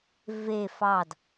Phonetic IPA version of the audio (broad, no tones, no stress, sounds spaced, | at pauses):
v e f ɑ d